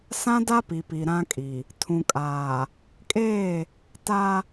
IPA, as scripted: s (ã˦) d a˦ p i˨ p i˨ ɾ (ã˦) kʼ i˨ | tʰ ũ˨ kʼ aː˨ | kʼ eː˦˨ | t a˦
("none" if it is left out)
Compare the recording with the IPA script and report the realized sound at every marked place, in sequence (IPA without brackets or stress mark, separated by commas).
ã˦, ã˦